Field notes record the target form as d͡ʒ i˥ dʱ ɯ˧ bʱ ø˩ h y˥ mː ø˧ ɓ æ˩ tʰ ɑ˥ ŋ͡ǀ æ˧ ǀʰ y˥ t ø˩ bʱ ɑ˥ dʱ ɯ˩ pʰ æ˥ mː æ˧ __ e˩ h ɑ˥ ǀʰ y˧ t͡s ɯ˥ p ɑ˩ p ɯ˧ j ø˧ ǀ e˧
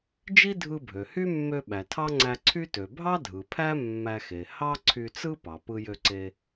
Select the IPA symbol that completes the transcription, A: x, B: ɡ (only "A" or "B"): A